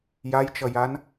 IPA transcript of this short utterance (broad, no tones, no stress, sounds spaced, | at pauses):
j a j t͡ʃ ʌ j a n